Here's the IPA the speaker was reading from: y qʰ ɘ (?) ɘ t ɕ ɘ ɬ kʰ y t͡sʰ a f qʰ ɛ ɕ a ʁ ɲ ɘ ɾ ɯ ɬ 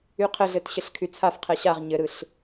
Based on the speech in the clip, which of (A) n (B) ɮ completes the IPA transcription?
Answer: B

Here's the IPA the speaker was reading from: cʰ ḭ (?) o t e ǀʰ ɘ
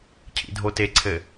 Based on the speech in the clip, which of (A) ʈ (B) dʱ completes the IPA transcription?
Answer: B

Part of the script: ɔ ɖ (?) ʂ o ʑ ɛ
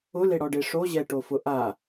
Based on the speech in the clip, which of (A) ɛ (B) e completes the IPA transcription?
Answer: B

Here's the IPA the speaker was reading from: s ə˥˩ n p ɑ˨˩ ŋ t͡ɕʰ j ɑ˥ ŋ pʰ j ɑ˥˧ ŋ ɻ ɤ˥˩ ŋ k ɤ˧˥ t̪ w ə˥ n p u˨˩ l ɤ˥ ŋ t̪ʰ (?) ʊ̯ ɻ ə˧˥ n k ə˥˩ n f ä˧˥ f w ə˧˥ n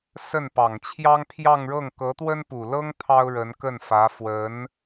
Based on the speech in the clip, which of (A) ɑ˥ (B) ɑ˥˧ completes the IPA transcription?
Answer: A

